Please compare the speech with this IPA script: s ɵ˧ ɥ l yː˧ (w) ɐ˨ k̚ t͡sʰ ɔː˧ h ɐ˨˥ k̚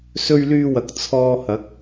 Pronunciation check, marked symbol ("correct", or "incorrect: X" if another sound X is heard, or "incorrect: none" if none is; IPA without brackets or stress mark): correct